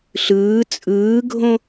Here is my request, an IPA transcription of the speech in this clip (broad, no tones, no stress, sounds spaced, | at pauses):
ɬ ɯː t͡sʼ ɯː ɡʱ õ